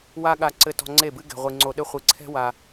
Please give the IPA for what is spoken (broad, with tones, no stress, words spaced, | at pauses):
wa˦ ɠa˧ǀɘ˧ tɔ̤˧ŋ͡ǀe˦˨bɨ˦ ɡɛ̤˨ʁʷi˨ ŋ͡ǀo˧ɗɘ˦χʷi˧ ǀʰɛ̤˦wa˧